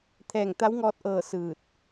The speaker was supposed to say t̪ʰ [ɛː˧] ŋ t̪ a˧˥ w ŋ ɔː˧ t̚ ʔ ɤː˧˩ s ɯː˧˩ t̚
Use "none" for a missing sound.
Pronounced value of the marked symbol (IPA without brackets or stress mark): ɛː˧˩